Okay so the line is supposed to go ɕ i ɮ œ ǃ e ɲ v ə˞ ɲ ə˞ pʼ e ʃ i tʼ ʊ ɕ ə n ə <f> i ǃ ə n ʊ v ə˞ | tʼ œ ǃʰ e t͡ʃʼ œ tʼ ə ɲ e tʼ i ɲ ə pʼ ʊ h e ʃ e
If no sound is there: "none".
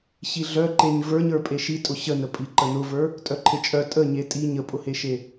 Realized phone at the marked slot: pʼ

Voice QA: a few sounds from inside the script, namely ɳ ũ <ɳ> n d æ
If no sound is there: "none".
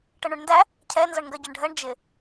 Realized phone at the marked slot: ɳ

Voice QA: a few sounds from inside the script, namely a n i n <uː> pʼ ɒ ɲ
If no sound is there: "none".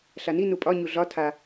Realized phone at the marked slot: u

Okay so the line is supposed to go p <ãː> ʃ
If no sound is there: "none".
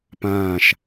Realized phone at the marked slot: ãː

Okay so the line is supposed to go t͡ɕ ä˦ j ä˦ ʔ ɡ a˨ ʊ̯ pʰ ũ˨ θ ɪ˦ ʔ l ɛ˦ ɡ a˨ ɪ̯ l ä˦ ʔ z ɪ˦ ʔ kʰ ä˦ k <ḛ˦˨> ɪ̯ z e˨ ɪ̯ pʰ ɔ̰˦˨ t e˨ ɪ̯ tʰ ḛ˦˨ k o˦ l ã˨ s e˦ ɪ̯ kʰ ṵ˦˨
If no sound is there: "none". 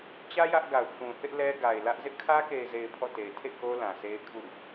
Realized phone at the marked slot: e˨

